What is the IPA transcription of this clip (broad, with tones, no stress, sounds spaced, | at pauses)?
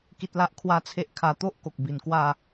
k i˦ t̚ l a˦ ʔ kʰ w a˦ t͡sʰ e˦ ʔ kʰ a˨˩ t̪ o˦ ʔ k o˨ k̚ b i˨˩ n k w a˥˧